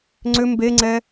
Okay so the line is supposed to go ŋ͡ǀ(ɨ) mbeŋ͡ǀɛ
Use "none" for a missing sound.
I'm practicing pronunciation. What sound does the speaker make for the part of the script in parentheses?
ʏ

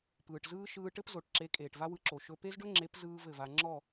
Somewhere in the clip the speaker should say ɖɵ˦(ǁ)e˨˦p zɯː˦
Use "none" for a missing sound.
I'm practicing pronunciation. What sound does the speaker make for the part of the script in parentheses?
ŋ͡ǁ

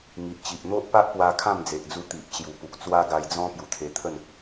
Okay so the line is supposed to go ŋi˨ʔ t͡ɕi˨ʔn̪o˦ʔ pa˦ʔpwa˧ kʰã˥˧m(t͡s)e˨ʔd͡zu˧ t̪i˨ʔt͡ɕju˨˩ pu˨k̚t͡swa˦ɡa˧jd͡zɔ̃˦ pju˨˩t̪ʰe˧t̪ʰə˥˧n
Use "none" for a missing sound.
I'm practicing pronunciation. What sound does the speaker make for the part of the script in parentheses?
d͡z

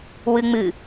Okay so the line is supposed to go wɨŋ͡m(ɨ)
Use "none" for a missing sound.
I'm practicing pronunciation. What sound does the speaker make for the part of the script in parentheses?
ɨ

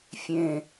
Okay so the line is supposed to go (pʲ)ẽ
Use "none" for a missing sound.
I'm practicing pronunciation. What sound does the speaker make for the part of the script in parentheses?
fʲ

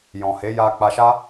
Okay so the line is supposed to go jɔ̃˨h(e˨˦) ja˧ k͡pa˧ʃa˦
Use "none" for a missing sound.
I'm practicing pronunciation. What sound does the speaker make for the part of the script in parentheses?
e˨˦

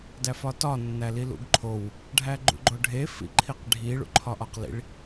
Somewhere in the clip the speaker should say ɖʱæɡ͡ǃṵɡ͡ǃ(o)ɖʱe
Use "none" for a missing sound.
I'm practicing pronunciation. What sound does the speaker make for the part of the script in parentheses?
o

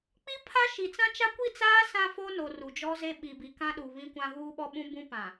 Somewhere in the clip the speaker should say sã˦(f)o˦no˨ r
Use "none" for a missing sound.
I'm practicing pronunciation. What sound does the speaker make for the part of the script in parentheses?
f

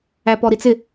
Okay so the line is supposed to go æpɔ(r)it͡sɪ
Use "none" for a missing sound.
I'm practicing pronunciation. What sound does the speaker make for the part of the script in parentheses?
ɾ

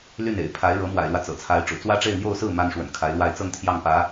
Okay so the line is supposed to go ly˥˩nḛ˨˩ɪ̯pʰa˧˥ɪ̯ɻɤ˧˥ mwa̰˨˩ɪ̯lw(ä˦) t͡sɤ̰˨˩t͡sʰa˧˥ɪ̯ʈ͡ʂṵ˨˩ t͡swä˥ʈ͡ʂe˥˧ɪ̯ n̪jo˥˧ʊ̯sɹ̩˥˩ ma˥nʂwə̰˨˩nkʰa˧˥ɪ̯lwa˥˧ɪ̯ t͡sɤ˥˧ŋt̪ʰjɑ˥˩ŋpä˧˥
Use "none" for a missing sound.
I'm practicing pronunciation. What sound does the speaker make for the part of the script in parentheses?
ä˦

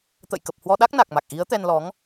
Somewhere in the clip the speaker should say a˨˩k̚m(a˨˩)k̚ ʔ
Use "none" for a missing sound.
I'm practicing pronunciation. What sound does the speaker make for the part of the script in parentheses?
a˨˩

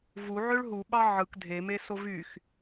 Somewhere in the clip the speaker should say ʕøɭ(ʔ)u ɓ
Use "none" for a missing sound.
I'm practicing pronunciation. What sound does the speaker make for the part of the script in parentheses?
ɦ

